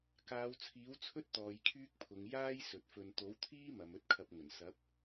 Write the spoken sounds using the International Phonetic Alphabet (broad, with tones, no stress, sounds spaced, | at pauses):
k aː˨˧ w t͡sʰ iː˨˥ w t͡sʰ ɵ˥ t̚ t̪ ɔː˨˧ j kʰ yː˥ k̚ pʰ ʊ˨˧ ŋ j aː˥ j s ɵ˨ t̚ f ɵ˧ n t̪ o˨˥ w t̪ʰ iː˥ m ɐ˨˧ m ɵ˥ t̚ kʰ ɐ˧ p̚ ŋ ɵ˨˩ n s ɐ˨˥ p̚